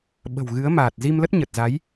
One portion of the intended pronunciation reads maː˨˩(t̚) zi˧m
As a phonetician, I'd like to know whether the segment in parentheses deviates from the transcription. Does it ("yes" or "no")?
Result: no